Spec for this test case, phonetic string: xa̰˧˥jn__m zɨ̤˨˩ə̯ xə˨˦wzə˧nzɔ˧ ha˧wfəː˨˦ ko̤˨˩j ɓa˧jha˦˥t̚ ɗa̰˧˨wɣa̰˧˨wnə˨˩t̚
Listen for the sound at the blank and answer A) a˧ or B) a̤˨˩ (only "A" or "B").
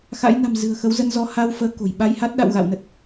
B